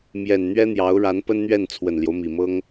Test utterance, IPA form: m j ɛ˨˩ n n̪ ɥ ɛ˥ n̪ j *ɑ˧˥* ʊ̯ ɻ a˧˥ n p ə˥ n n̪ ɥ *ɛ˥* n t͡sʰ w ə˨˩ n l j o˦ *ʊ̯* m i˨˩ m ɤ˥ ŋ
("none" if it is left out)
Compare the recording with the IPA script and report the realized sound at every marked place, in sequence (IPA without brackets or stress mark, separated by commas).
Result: ɑ˧˥, ɛ˥˩, ʊ̯